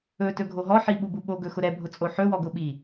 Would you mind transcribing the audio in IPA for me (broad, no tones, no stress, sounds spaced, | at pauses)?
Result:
ɵ t ɵ ɡʱ o ɦ ɔ ħ i ɓ u b u ɓ o ɡ ɵ x ʊ ɾ ɛ bʱ ʊ t͡sʼ o ħ ɵ w ɔ ɡ ʊ ɓ i